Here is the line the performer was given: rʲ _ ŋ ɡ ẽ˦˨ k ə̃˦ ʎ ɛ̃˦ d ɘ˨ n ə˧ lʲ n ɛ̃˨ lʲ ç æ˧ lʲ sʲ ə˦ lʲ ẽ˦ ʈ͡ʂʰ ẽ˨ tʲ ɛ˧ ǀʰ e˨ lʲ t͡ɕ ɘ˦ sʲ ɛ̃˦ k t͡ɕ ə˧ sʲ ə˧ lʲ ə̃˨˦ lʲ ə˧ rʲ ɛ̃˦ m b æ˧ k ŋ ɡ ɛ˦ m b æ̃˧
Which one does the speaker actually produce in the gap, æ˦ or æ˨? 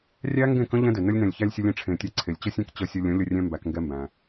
æ˦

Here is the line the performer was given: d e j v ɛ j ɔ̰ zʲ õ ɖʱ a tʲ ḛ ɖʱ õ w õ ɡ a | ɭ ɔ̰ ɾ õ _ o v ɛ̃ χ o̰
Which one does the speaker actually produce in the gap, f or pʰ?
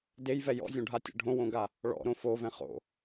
f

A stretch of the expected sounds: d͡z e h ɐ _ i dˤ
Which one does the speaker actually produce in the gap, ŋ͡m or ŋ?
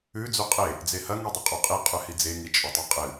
ŋ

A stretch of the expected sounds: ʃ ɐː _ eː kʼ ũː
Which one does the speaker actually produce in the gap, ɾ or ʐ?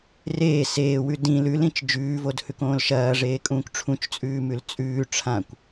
ʐ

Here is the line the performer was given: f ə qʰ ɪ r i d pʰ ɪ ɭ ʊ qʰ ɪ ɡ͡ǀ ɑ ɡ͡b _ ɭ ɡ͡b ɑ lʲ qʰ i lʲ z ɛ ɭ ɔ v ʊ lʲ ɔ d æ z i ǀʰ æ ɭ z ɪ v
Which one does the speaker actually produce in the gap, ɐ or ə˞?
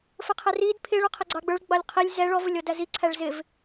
ə˞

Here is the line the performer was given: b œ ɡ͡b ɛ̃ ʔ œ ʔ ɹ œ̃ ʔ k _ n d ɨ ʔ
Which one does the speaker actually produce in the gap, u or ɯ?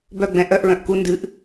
u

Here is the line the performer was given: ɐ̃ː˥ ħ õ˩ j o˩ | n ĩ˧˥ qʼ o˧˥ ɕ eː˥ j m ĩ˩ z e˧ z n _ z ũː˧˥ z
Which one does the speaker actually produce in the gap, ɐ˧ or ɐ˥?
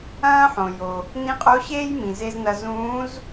ɐ˧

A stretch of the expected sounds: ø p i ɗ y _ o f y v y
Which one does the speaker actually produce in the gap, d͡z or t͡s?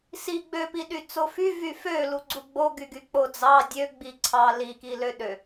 t͡s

